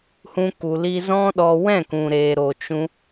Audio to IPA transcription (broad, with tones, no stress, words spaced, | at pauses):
hũ˧ku˨li˧ zɔ̃˦ɗɔ˧ wɛ̃˦˨kũ˨ɾeː˨ɾo˨ t͡ʃũ˧